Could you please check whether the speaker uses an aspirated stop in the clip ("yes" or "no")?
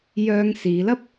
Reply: no